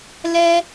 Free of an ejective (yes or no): yes